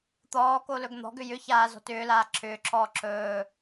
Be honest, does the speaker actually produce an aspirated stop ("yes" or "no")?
yes